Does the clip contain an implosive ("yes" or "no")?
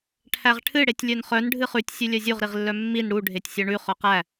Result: no